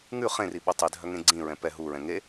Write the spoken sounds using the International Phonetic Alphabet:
ŋʉ χẽri ɓɵtˤidʱœ ŋẽɡ͡ǀĩɹɛ̃ pɛ ɦuɹɛ̃ ŋe

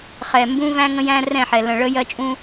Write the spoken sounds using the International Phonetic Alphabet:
χɛ˨ mbũ˦væ̃˦ ŋə̃˦jæ̃˦rɛ̃˦˨ħɛ˨ lə̃˨ɭə˦jɜ˦ t͡ʃʼũ˦

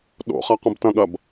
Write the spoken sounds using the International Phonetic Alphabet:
ɗo̰χa qɐ̃btɐ̃ɠɐb

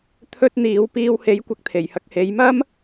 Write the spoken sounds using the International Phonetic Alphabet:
t̪ʰɵ˥t̚ n̪iː˨˧wpiː˧whe˨˥jkʷɐ˧k̚ t̪ʰe˨˩jhɐ˧k̚he˨˧jmɐ˥m

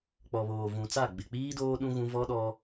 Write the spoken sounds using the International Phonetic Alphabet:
k͡pɔ˨βoː˨vũ˨t͡sa˦˨ ɡ͡bɪ˨k͡piː˦ doː˦ ɗũ˦ɣũ˦ vɔ˦ɗɔ˦

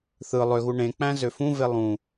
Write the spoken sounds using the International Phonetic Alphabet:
θɯ lˠøɣu ɳẽk͡pæ̃ zøfũve lˠũ

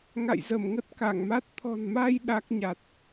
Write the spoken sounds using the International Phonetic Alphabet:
ŋa̰˧˨jzə˧˩mŋə˦˥t̚ ka˧˩ŋma˦˥t̚ t̪ʰɔ̤˨˩nma˧j ɗa˦˥k̚ɲa˨˩t̚

